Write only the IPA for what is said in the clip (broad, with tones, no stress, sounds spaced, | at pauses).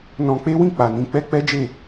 n ɔ̃˧ k͡p e˦ w ĩ˦˨ k͡p a˨ n ĩ˧ k͡p ɛ˦ k͡p ɛ˦ d͡ʒ e˦˨